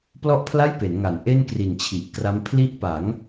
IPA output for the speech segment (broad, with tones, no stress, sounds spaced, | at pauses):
p l ɔ˥˩ ʔ pʰ l a˥˩ j p e˩˦ n ŋ a˩˦ n ʔ e˥˩ n k r i˨˩ n t͡ɕʰ i˨˩ ʔ k r a˦˥ m pʰ l i˦˥ ʔ p a˩˦ ŋ